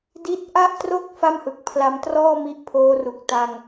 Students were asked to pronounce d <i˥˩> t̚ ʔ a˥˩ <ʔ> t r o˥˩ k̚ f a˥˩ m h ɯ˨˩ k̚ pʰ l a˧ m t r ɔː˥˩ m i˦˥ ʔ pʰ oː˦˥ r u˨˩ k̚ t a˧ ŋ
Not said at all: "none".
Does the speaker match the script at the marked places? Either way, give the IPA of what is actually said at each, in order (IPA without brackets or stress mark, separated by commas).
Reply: i˦˥, ʔ